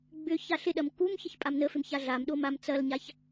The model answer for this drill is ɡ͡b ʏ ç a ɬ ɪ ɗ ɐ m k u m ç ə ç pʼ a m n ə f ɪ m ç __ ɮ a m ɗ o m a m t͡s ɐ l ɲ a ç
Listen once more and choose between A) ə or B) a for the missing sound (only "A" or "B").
B